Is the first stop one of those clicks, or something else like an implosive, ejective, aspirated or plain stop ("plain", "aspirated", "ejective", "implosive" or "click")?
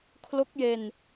aspirated